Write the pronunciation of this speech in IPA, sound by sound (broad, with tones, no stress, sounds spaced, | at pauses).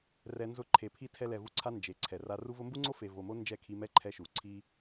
r ɛ˧ n z ʊ˦˨ ǃʰ e˨ pʰ i˦˨ tʰ ɛ˧ l ɛ˨ v u˦ ǀʰ a˦ n d͡ʒ e˨˦ ǀʰ ɛ˨ r a˧ r u˧ v ʊ˧ m b u˦ ŋ͡ǀ o˦ f e˨ v o˨ m o˦ n d͡ʒ ɛ˦˨ kʰ i˧ m ɛ˦ ǃʰ ɛ˧ ʃ u˨ ǀʰ i˦